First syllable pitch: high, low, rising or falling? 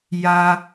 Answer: high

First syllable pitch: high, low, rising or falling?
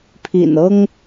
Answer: low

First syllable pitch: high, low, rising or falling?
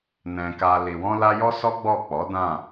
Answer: low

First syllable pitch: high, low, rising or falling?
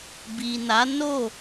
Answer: low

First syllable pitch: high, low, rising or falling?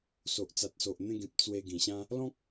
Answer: low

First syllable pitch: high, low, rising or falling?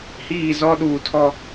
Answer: falling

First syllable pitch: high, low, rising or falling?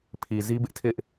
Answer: low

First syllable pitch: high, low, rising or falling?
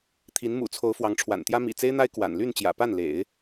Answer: rising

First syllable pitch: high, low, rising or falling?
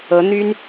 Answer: rising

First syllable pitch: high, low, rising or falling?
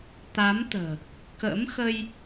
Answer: rising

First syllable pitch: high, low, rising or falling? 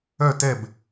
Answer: falling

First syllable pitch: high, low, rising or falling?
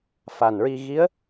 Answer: low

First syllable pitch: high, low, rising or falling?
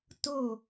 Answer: falling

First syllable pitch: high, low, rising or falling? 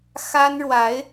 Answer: high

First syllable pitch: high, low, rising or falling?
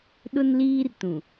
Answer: high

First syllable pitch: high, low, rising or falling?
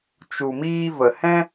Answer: low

